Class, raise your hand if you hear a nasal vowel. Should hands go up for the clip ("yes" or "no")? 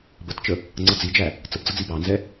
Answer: no